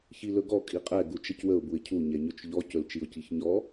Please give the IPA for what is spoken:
ç i l ɵ ɡ ɔ kʼ i qʼ ɛ ɡ u t͡ʃ ə c w ə ʊ̯ b u ɪ̯ cʰ u ɲ ɛ ɲ ɵ t͡ʃ ʎ ɔ c ɵ l t͡ʃ i ʊ̯ c i ç ɲ ɔ

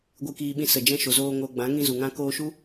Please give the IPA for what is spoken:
ɡʷ ɨ˧ k iː˧ ɓ ĩ˧ s ə˨ d͡ʒ ɛ̃˧ ʃ o˨ z oː˧ ŋ oː˧ ɡ͡b ã˨˦ ŋ ĩ˧ z u˨ ŋ ã˧ k oː˧ ʃ u˦

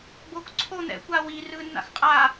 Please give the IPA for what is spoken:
b oː k ǀʰ o n̪ ɛ̰ kʷ aː w i r ɯː nː a̰ x qʼ a

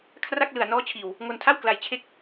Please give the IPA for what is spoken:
kʰ r a˥˩ k̚ l ɯ˨˩ a̯ n ɔː˦˥ t͡ɕʰ iː˨˩ w | ŋ o˧ n tʰ a˥˩ w k l a˧ j t͡ɕʰ e˥˩ k̚

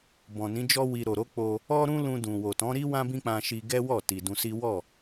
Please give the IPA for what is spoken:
b ɔ̃˨ n ĩ˨˦ d͡ʒ ɔ˦ w i˧ ɾ o˨ ɾ o˨˦ k͡p o˧ | ɔ˦ ɾ ũ˦ l ũ˧ d ũ˨ w o˨ t ɔ̃˨˦ ɾ i˦ w ã˦ b ĩ˦ k͡p ã˧ ʃ i˧ ɡ ɛ˦ w ɔ˦˨ t i˨ d ũ˧ s i˦ w ɔ˦˨

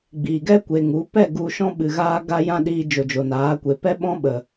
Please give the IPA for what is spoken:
ɡ͡b iː˨ ɡ ɛ˦ kʷ e˨ ŋ u˨˦ p ɛ˦˨ ɡ u˧ ʃ ɔ̃˦ ɓ ɨ˨ ɣ aː˧ ɡ a˧ j ã˦ ɗ iː˧ d͡ʒ o˨ d͡ʒ o˨ n aː˨˦ kʷ e˨ p ɛ˦ ɓ ɔ̃˦ ɓ ə˨

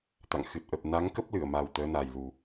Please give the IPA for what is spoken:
t̪ a̰˧˨ ŋ x ɨ˨˩ t̚ ʔ ə˨˩ p̚ n a˨˦ ŋ k ə˦˥ p̚ l ɨ˧˩ ə̯ m a˨˩ w t̪ əː˨˦ n aː˨˩ j l u˨˩

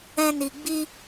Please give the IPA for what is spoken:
ɛ̃˦ n i˧ ɡ͡b i˦

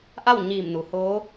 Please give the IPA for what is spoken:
ʔ a˥˨ w ɲ iː˧˩ m n u˩ h oː˧˥

